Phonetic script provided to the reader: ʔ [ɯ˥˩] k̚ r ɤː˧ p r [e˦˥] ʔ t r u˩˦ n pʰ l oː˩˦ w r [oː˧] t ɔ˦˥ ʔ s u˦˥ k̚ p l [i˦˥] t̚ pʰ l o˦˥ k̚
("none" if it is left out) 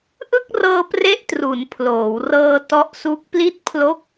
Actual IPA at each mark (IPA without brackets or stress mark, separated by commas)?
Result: ɯ˥˩, e˥˩, ɤː˧, i˦˥